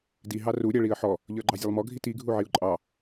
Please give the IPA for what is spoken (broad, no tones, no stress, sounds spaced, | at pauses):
d i ɦ ɑ r u ɾʲ æ ɭ i ə̯ ħ ɔ | ʎ ə˞ ɡ͡ǃ ɑ zʲ ɛ lˠ m ɔ ɡʱ i t i ɡʱ u ʕ i ʊ̯ ǃʼ ɑ